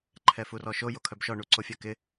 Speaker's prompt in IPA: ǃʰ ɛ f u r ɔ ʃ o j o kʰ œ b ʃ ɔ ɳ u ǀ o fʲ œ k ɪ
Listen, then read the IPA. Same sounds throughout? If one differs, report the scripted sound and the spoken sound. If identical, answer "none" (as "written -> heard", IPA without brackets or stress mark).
none